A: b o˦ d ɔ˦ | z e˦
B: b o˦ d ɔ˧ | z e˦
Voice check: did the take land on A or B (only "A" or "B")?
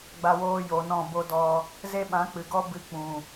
B